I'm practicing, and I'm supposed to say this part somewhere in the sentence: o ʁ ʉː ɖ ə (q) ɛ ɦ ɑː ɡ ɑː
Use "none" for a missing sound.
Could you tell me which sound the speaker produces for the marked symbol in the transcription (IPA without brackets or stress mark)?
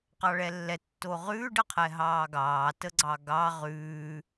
qʰ